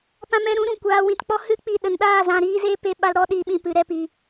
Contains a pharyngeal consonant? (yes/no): no